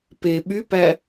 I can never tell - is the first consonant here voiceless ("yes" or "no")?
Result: yes